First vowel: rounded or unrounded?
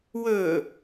rounded